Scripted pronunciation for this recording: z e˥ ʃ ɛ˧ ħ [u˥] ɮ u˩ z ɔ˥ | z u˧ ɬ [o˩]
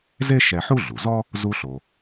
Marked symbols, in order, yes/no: yes, yes

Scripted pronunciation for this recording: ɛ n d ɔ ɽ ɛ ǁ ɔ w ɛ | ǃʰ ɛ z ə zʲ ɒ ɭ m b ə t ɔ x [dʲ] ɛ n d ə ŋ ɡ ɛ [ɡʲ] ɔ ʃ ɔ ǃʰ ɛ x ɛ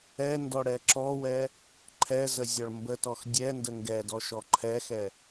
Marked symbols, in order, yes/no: yes, no

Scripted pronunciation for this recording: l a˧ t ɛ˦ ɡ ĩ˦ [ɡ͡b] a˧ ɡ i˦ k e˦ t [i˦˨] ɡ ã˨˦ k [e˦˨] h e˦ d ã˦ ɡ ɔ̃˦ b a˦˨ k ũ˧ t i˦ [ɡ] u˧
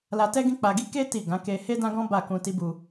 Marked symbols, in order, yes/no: no, yes, no, no

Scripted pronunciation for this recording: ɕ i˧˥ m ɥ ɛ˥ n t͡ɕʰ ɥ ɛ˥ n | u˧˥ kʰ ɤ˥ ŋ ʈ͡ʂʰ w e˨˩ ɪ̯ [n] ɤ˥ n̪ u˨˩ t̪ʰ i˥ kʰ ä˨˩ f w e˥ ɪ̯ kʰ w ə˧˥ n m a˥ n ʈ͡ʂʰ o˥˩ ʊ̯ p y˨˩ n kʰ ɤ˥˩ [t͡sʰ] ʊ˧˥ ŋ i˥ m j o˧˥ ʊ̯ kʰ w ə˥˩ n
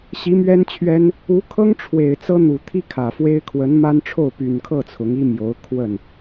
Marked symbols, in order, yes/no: no, yes

